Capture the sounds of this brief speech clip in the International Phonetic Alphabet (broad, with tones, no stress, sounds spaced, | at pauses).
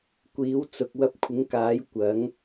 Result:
kʷ iː˨˥ w t͡s ʊ˨ k̚ w ɐ˧ p̚ kʷʰ ɪ˨˥ ŋ k aː˨˥ j kʷ ɐ˨˥ ŋ